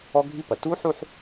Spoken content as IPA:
ɔ˥ ɡʱ i˥ p ɐ˩˧ t u˥ ħ u˥˧ ħ

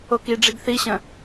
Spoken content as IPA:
o k i ɖ͡ʐ i ɡ θ i ɕ ə̃

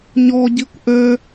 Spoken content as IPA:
ɲ ɔ ɟ i kʷ ʔ ø

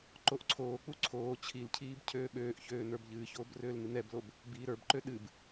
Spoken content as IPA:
ǃ o ʔ ǀʰ oː k͡p u ǀʰ oː t͡ɕʰ i l cʰ iː b cʰ øː ɓ øː ʔ ç øː n ə˞ b ʎ ɨː ç oː b r øː l n ɨ n ɛ b l o b | b iː ɾ ə˞ b ǃ ø ɗ ɨ b

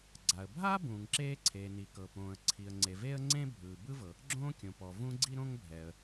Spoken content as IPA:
ɡ͡ǀ a˩ ə̯ bʱ a˥ b ũː˩ ŋ ǁ eː˥ ǀʰ eː˩ n i˩ k ɤ˩ p õː˩ ə̯ ǀʰ i˩ ə̯ ŋ͡ǀ e˩ v eː˥ ə̯ ŋ͡ǀ ẽ˥ bʱ ɯː˩ b ɯ˥ v ɤ˩ | ɡ͡ǁ õː˥ kʲ õ˩ p ɔ˩ v ũ˥ ɡ͡ǀ i˥ ɾ õ˥ ŋ bʱ ɛ˩ ə̯

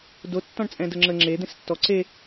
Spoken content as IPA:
d o tː ɔ̃ ɳ t͡sʼ ɛ̃ d ə ŋ͡ǁ ə ŋ͡ǁ e d̪ ẽ s tː ɔ ǀ e

